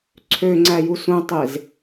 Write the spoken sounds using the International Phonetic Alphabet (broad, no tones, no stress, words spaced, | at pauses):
ǀʰøŋ͡ǀæju sũtˤez